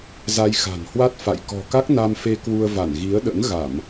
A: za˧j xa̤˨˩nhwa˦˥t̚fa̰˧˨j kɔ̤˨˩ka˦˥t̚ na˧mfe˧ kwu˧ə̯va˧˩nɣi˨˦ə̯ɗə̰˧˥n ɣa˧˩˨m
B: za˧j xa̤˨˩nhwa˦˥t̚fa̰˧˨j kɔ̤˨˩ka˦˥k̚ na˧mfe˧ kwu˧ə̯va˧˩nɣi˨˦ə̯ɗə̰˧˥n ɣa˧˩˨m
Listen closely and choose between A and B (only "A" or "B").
B